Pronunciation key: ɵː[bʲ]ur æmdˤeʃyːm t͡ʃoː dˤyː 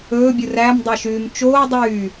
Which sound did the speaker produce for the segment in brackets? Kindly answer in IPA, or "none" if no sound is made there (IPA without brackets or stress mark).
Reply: bʲ